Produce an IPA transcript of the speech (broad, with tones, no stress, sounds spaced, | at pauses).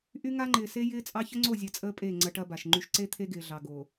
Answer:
ʔ y˦ ŋ a˦ ŋ͡ǃ ɪː˨ s e˦ j ɪː˦ t͡sʼ ɑ˦ ç ə˦ ŋ͡ǀ o˦˨ zʲ ɐ˨ t͡sʼ əː˦ pʼ e˦˨ ŋ͡ǀ ɐ˦ ʈ ɐ˦ b a˨ ʃ ŋ͡ǃ y˦ ʃ ǀ e˦ t̪ʰ e˦ ɡ ɪː˨ ɮ ɑ˨ ɡ o˨